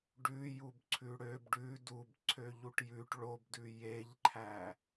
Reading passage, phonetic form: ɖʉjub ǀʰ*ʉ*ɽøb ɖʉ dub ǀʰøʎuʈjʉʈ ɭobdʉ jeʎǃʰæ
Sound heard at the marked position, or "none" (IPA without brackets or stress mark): ʉ